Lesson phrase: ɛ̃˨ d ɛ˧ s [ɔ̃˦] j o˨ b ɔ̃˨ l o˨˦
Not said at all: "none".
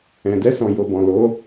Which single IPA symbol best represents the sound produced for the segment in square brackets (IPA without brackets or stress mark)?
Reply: ɔ̃˨